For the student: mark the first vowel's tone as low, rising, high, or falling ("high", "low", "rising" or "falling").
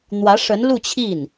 rising